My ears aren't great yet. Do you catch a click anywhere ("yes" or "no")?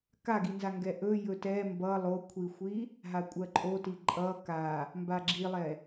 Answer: yes